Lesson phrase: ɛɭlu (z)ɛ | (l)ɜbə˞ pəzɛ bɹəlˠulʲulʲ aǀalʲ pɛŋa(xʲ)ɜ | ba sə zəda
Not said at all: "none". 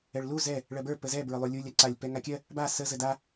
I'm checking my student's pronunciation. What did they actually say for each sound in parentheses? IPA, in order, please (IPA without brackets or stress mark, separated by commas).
z, ɭ, kʲ